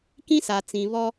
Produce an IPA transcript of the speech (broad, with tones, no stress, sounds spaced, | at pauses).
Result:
k ĩ˦ s a˨ t͡s ĩ˨ β ɔ˦